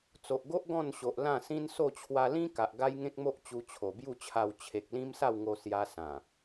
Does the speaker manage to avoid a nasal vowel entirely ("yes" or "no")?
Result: no